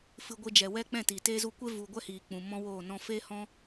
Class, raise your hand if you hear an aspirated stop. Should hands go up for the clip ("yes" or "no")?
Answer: no